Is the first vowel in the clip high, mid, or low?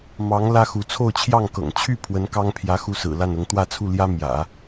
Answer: low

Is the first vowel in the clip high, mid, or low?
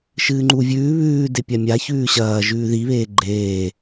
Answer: high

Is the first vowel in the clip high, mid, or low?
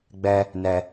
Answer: mid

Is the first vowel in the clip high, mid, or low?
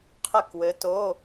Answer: mid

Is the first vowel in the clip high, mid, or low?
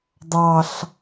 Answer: low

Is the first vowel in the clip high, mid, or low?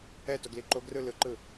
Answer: mid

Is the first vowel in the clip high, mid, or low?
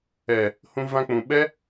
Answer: mid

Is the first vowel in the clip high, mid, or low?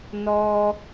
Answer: mid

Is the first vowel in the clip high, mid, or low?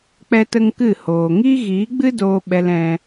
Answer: mid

